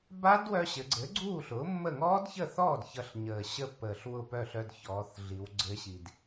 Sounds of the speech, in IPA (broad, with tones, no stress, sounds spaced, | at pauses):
b a˦˥ d w œ˧ ɕ ɘ˩˧ ɡ͡ǀ ɘ˩˥ ɡ͡ǀ uː˥˩ ɬ ʊː˩˥ mː ə˥˩ ŋ ɔː˦˥ d ç ə˥˩ θ ɔː˥˩ d ç ʌ˧ ɬ ɲ əː˨˩ ɕ ə˥˩ pː əː˨˩ ɬ w ʊ˥˩ p œ˥˩ ɬ œ˧ d ç ɔː˩˧ θ ɮ i˩˧ w ɡ͡ǀ ɘ˦˥ ɕ i˧ d